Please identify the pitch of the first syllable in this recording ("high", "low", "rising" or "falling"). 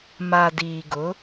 low